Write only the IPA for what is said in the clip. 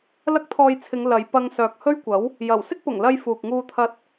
lɐ˥k̚t̪ʰɔː˧jt͡sʰɪ˨˧ŋ lɐ˨˧j pɐ˧ŋ sœː˨k̚hɵ˥ɥkʷɐ˨˥w | jɐ˨˩w sɪ˥k̚pʊ˨˩ŋlɐ˧j fuː˨k̚ŋuː˧t̪ʰɐ˧t̚

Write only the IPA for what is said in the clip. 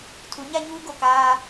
tʰu˨˦ɲa˦ɲuː˦ ɡo˨kaː˦

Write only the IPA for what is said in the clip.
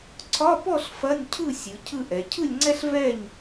ǀʰɒ˧˥˧pɔ˥˨ɬ fɐ˧˥˧nʲcʰɯ˥˨ sʲɯ˩˧ cʰɯ˥˨ʔɛ˩˧ cʰɯ˥˨lʲŋ͡ǀɛ˥ɬ vɛ˥˨ɲ

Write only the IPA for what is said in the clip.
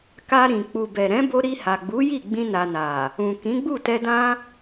ka˧ɾĩ˨ k͡pu˨bɛ˨ɾɛ̃˨˦bo˧ ɾi˧ha˨ɡ͡bu˨˦ ji˦˨ɡ͡bĩ˧na˨ na˨ | ũ˨kĩ˨˦ɡ͡bu˦˨tɛ˧ dã˧

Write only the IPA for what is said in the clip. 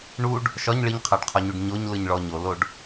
ɳuɖ | ʃɒɲ ɭiɲqʰaɖqʰɒɲuɖ ɲoɲlɯɲɭɔ ɲoloɖ

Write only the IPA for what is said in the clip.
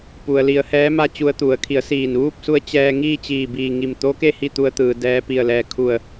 pu˩ə̯li˩˧ə̯ hɛː˧˥ma˥˨t͡ɕu˧ə̯t̪u˩˧ə̯ kʰi˩˧ə̯siː˧˩nʋuː˥˨p̚su˧˥ə̯ t͡ɕɛː˧ŋiː˥˨ t͡ɕiː˧˩biː˧˩ŋi˧˩m t̪o˧˥ke˥˨ hi˥˨t̪u˧ə̯t̪ɯː˩ dɛː˧ pi˧˩ə̯ lɛː˧˩kʰu˧˩ə̯

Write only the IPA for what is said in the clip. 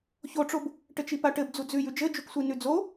çoʈ͡ʂob | ʈɘt͡ʃipaʈɘb d͡zud͡zʉj ʉd͡ʒɘd͡ʒuksʷi nʉd͡zo

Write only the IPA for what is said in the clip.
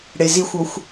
ɽezixʷoxʷ

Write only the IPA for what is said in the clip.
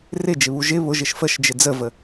rɪd͡ʒɪβu ʒɪ βʊʒɪʃ fəʃd͡ʒɪ d͡zəvə

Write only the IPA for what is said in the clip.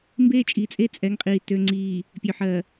mbeː˦t͡ʃʼiː˨t͡sʼe˦ t͡sʼɛ˨˦ŋqʼiː˨ tø˨ŋ͡ǀiː˨ | pʲø˨ħɜː˨

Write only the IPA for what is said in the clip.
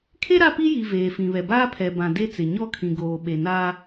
kʰe˦ ɾa˦pi˦ ji˨ veː˨fĩ˨βɛ˨ baː˦pʰɛ˨bã˨ de˦t͡sɪ˨ ɲɔ˦kʰĩ˨ɡoː˨ ɓe˨naː˦

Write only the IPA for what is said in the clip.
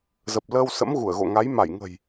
zə˨˩p̚ləː˧wsə̰˧˥mɣu˧˩ə̯ ɣo̰˧˨ŋa˨˦j ma˧˩jŋə̤˨˩j

